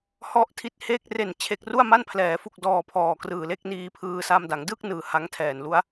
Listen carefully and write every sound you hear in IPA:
h ɔ˦˥ ʔ tʰ i˦˥ t̚ h eː˥˩ k̚ r e˨˩ n t͡ɕʰ e˨˩ k̚ r u˥˩ a̯ m a˥˩ n pʰ l ɛː˩˦ f u˨˩ k̚ d ɔː˨˩ pʰ ɔː˨˩ k r ɯː˨˩ l e˥˩ k̚ n iː˧ pʰ ɯː˧ s a˧ m d a˩˦ ŋ d ɯ˥˩ k̚ n ɯː˩˦ h a˦˥ ŋ tʰ ɛː˨˩ n l u˦˥ a̯

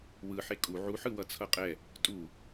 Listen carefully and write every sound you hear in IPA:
w ɯ ħ e kʼ u ʕ u ħ ɯ w ʌ t͡sʰ ʌ qʼ ɛ | tʼ u

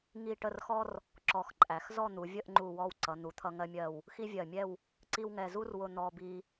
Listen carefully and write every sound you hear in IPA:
ŋ i˥˧ ʈ ə˥˧ r x ɔ˥ r | ǁ ɔ˧ x ǃʼ æ˩˧ x z ɔ˥˧ n̪ u˩˧ vʲ ə˥˧ ʔ ŋ͡ǃ u˥˧ w ɔ˥˧ w ǀ ʌ˩˧ n̪ u˩˧ t̪ʰ ʌ˧ ŋ ɜ˧ mʲ ɜ˧˩ w | x i˥ vʲ ɜ˧˩ mʲ ɛ˥˧ w | ǀ i˥ w ŋ ɛ˧ z u˥ r w ʊ˧ n̪ ɔ˧ b i˧

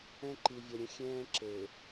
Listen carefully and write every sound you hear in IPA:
ɛ̃˦ ǃ i˨ vʲ ə˨ ɾʲ ə̃˦ xʲ ɛ̃ː˦ ǁ e˨

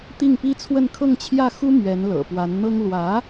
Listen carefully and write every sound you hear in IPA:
t̪ i˥˩ ŋ p i˥ t͡sʰ w ə˥˧ n kʰ ɤ˥˧ ŋ t͡ɕʰ j ä˥˩ x u˥ m ɥ ɛ˧˥ n l ɤ̰˨˩ p w a˧˥ n n̪ ɤ˥ ŋ l w ä˧˥

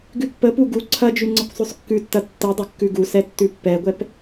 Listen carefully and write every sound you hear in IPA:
ɡ ʉ pː ə p u ɡ u ǀʰ ɐ d͡ʒ ʉ ŋ͡ǀ ə kʷ sˤ ʉ sˤ kː ʉ tː ɐ tː ə dˤ ə kː ʉ ɡ u s ɛ tː ʉ pː ɛ ɡʷ ɛ p

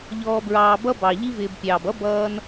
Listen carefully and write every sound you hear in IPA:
ʎ ɔː˨ b ɹ ɑː˨ b ʌ˥ b ɑ˩ ʎ i˦ v ɪː˨ b pʲ ɑː˩ b ʌ˥ b ʌː˦ n

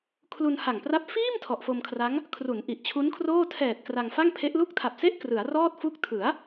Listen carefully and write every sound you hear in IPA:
kʰ l u˧ n h a˨˩ ŋ p r a˦˥ p̚ f iː˥˩ m tʰ ɔ˨˩ ʔ f o˧ m kʰ r a˦˥ ŋ | kʰ r u˩˦ n ʔ i˨˩ ʔ t͡ɕʰ u˦˥ n kʰ r oː˥˩ tʰ ɛː˨˩ t̚ k r a˧ ŋ f a˥˩ ŋ pʰ e˦˥ ʔ l u˥˩ k̚ tʰ a˨˩ p̚ s e˥˩ ʔ k r ɯ˩˦ a̯ r ɔː˥˩ t̚ f u˦˥ k̚ tʰ ɯ˩˦ a̯

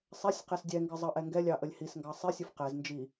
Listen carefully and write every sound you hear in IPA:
sˤ ɛ sʲ q ɛ s dʲ ɛ ŋ ɡ ɨ zˤ ɑ ʔ ɛ ŋ ɡ ɛ lʲ ɑ ʔ ə lʲ h i s ŋ ɡ ɑ sˤ i sʲ u f q ɛ z n d͡ʒ i

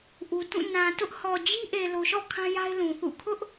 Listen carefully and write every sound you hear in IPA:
ʔ u˨ t ũ˦˨ n ã˨ t ʊ˦ ʔ h ɔ˨ d͡ʑ i˦ ʔ e˨ l o˨ ʃ ɔ̰˦˨ kʰ ã˦ j a˦ ɪ̯ l ũ˨ θ ṵ˦˨ kʰ ʊ˦ ʔ

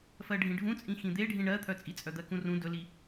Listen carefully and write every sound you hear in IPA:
f ɜ ɖʱ ĩ ɖʱ ũ t͡sʼ ĩ x ĩ d̪ e ɖʱ ĩ ɳ ɜ t̪ʰ œ t͡sʼ i t͡sʼ œ d̪ ɜ k ũ r ũ d ɵ l i

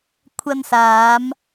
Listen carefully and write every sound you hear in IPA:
kʷʰ ɐ˧ n s aː˨˧ m

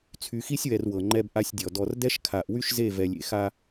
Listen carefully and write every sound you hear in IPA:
t͡sʰ y˨ x i˦ sʲ w ɛ˨ r w ɤ˨ ŋ͡ǃ ɛ˦ b ʔ a˦ sʲ dʲ ɔ˨ d ɔ˨ r d ɛ˦ ʃ kʰ a˨ ʔ w y˦ ʃ z e˦˨ v ɛ˨ lʲ ḛ˨ x a˦

